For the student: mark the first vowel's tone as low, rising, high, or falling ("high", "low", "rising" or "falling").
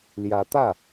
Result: rising